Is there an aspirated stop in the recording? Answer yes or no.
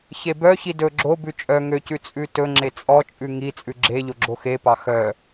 no